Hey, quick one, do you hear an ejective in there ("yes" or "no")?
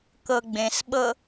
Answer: no